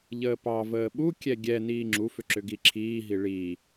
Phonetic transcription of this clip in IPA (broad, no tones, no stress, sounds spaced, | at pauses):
ʎ əː p ɑ v əː ɓ u kʲ ɛ ɡʲ ɛ n iː ŋ͡ǁ u f ʏ ǁ ʏ ɡ i ǁʰ iː ɦ i ɭ i